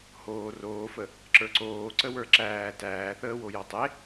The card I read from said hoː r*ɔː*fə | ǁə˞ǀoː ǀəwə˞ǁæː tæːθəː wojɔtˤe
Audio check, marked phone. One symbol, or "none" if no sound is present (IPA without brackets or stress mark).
oː